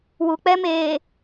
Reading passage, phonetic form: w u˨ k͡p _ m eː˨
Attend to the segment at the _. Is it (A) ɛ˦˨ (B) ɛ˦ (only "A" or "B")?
B